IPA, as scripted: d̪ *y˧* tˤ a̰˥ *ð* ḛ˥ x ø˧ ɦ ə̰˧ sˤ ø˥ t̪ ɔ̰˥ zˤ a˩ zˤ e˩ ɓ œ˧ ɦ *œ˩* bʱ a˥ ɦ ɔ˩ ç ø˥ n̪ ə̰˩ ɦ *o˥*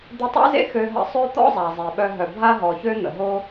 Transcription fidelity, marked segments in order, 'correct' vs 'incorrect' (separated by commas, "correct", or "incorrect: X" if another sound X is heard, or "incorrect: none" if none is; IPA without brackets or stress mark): incorrect: ɪ˧, incorrect: z, correct, correct